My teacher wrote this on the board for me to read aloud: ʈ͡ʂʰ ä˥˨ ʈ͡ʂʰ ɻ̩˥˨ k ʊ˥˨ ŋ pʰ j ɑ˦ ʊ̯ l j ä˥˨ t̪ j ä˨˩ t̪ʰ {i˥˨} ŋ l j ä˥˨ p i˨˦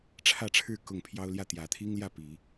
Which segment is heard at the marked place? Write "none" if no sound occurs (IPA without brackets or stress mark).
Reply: i˦